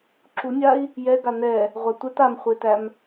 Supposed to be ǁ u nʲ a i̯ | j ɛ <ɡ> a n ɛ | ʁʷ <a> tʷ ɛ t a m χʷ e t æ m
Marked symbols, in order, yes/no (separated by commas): yes, yes